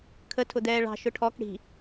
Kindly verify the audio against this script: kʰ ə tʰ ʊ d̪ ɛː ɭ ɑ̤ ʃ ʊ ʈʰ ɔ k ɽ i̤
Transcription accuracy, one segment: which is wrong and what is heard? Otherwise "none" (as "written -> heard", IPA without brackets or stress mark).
none